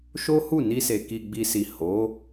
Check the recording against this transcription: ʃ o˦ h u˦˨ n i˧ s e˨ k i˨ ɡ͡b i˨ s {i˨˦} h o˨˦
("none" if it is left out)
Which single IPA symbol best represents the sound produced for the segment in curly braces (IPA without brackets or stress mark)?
i˨